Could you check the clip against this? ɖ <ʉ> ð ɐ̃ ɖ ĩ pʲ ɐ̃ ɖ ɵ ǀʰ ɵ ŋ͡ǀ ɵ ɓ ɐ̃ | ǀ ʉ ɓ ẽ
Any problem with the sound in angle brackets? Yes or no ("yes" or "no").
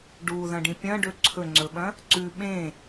yes